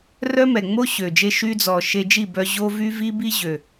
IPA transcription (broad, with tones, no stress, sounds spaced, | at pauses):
r œ˦ m ɛ˨ ŋ͡m o˦ ɕ ø˨ d͡ʒ e˦ ʃ y˧ d͡z ɔ˨ ʃ e˧ d͡ʒ i˦˨ b œ˧ ʑ o˦ v y˦ v i˦ b i˦ ʑ ø˨